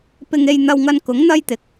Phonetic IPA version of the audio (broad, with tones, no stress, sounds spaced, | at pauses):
p ɪ˧ ŋ e˧ j n̪ ɐ˧ w ŋ ɐ˧ n k ʊ˨˥ ŋ n̪ ɐ˥ j t̪ ɪ˨ k̚